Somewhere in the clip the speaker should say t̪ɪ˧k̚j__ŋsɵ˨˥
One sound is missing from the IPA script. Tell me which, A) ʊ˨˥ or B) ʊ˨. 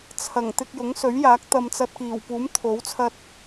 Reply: A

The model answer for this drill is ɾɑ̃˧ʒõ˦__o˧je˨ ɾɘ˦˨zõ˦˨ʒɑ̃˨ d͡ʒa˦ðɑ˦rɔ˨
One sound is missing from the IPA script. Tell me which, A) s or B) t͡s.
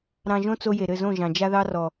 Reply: B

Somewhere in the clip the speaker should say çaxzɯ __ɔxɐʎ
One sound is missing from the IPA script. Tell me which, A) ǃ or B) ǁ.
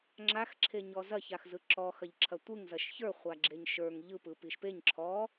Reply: B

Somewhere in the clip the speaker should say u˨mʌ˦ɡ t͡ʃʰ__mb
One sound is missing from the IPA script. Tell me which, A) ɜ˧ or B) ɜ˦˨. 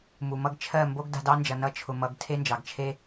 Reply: B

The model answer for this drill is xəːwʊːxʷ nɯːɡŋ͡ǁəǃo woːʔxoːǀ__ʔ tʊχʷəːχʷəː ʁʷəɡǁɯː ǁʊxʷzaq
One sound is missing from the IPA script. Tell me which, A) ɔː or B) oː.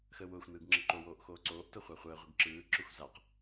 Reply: B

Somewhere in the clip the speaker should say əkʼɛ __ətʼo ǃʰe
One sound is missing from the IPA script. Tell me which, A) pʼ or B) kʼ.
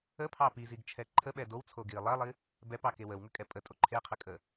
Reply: A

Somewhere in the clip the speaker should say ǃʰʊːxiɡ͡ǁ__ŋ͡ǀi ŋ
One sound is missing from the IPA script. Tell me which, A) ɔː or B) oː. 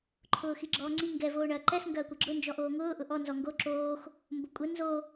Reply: A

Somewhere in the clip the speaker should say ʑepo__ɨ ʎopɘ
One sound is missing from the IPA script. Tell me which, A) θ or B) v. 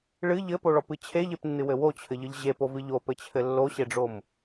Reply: B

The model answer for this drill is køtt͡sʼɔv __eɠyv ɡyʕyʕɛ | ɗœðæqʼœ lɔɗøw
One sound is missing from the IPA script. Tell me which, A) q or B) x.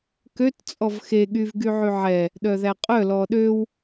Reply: B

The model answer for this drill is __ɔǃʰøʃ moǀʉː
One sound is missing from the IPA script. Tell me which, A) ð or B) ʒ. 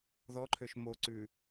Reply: A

